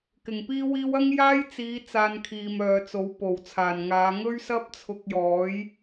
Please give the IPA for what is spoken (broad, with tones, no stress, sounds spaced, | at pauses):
k ɪ˨˩ ŋ p iː˥ w iː˥ w ɐ˥ ŋ j aː˥ j t͡s iː˨˧ t͡s aː˧ n kʰ iː˨ m œː˨ t͡s o˨˥ w p o˨˩ w t͡sʰ aː˨˩ n ŋ aː˨˧ ŋ ɵ˥ ɥ s ɐ˥ p̚ t͡sʰ ʊ˧ k̚ j ɔː˨˥ j